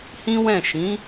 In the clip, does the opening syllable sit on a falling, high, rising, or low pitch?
high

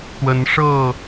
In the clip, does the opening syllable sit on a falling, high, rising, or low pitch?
rising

